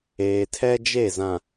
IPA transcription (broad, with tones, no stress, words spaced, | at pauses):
eː˨tʰɛ˦ d͡ʒe˦˨zã˨